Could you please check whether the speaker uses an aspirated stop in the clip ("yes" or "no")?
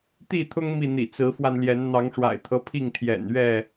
yes